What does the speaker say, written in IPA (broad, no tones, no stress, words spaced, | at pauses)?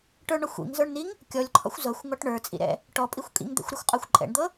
ʈə˞ɳɔxʷ ḭŋzə˞ɳniŋ | kʲɔlʲǃʰɔ̰xʷ zɤxʷŋɔʈ ɳə˞t͡sʼḭɾɛ̰ | ʈɔpʼixʷ kʼḭŋd̪ɛ̰xʷɾə˞xʷqʼɤxʷ ǃʼɛ̰ɳd̪ɤ